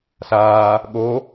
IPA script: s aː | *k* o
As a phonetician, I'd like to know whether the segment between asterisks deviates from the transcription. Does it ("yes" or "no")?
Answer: yes